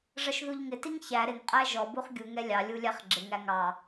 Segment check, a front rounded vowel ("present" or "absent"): absent